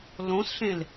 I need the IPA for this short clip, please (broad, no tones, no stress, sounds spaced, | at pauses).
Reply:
l õ s ɬ ẽ l